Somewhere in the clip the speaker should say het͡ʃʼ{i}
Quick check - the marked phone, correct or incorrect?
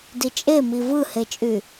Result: incorrect